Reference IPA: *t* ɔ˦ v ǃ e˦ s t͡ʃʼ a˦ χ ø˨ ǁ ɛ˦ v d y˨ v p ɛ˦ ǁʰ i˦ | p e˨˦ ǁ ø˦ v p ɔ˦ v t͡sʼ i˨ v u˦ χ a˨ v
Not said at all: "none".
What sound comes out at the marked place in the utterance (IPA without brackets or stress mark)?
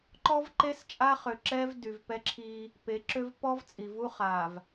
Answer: ǃ